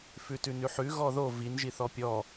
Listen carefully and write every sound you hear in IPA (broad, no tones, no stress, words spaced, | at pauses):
fʉtʉnʉħʉ ɣɔðo vin ʒiθɔpʲɔ